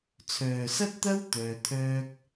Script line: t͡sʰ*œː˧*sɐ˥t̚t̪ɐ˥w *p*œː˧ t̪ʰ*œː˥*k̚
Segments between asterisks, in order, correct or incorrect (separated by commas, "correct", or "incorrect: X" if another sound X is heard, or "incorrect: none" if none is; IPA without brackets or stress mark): incorrect: œː˨, incorrect: t̪, correct